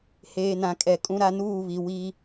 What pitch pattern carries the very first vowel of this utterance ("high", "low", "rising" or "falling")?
low